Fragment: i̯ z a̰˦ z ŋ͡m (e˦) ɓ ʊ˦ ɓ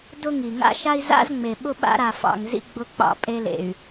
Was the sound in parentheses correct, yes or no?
no